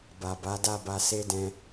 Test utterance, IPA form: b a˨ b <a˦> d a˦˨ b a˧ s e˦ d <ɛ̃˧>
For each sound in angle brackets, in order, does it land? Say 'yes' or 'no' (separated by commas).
no, yes